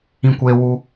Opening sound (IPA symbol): ĩ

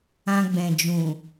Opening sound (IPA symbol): ã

